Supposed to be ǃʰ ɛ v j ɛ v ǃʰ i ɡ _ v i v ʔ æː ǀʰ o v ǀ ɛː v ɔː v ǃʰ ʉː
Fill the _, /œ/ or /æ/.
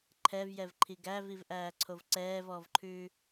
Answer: æ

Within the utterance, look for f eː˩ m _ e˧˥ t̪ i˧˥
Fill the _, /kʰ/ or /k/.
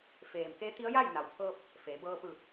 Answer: k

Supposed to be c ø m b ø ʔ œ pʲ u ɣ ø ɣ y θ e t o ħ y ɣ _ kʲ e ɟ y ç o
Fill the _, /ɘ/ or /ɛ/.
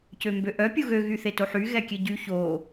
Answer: ɛ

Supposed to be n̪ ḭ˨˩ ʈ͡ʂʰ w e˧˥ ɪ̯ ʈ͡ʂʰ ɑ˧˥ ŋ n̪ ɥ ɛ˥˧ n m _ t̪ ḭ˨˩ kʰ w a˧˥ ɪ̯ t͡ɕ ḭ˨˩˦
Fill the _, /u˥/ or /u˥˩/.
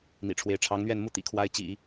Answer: u˥˩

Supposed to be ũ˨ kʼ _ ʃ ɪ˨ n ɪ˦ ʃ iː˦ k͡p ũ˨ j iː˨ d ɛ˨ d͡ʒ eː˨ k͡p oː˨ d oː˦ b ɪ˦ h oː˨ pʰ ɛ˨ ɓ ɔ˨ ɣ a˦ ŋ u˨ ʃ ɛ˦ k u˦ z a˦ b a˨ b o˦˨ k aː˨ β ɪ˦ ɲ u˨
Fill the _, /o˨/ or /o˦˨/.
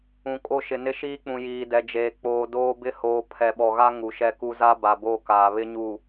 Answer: o˦˨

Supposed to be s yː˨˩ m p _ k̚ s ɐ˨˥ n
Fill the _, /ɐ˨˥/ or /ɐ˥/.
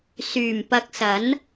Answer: ɐ˨˥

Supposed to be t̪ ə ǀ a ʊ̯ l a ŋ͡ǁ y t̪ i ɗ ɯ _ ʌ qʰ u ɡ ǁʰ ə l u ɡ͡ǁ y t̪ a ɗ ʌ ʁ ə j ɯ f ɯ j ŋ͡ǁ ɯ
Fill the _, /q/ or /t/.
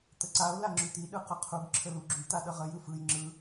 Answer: q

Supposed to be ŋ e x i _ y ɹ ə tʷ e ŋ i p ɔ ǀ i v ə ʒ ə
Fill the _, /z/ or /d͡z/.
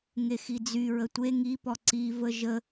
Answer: d͡z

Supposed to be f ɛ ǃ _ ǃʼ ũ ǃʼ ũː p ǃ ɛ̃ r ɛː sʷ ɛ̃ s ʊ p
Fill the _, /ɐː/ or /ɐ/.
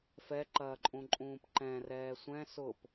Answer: ɐː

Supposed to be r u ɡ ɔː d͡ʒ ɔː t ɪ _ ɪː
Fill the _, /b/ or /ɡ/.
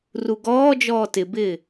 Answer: b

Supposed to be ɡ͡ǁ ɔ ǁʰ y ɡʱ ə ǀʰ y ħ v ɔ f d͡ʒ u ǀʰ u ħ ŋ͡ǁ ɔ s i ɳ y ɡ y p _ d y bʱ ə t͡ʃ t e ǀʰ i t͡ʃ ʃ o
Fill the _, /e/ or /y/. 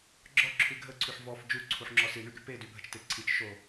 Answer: e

